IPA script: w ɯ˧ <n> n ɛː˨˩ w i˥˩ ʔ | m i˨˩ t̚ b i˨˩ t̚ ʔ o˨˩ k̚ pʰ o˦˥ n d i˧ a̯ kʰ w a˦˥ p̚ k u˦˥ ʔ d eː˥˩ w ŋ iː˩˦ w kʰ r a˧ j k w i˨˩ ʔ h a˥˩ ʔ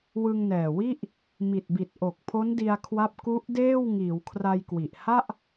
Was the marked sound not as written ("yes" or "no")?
yes